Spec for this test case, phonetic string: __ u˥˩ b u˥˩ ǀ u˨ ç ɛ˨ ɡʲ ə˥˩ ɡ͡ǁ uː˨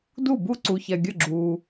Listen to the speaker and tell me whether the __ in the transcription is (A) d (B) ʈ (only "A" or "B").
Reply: A